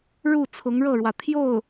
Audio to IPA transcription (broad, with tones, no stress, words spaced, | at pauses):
ɻu˥˩ t͡sʰʊ˧˥ŋɻɤ˥˩ɻwä˩ t̪ʰjo˥˩ʊ̯